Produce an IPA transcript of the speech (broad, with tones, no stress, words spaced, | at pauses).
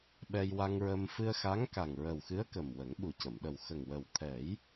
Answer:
ɓɛ˧jwa˧ŋɹəː˧m fɨ˧ə̯xa˧˥ŋ ka˨˩ŋɹə˨˩wxɨ˧˥ə̯ kə˨˩mwə˨˩˦ŋɓu˨˩cə˨˩˨m ɗə˨˩wxə˨˩ŋ wə˨˩wt̪ʰɛ˨˩˦j